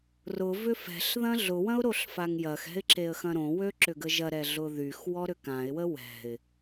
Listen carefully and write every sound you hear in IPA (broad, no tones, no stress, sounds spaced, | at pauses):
r ʊ v ʏ f ɛ̤ ɬ ð ɐ̃ ɮ ʊ w ɐ̃ ʊ̯ ɾ o ɬ f a ŋ j ɐ x ɛ̤ ɪ̯ ǁ e ə̯ x ɐ̃ ɾ õ w ø ǁ ʏ ɡ ə ʒ ɐ ɾ ɛ ɮ ʊ ð y x w ɔ ɾ ʏ k ã ɪ̯ w ə w ɛ̤ ɪ̯